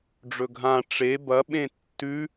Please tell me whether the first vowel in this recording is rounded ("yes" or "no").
yes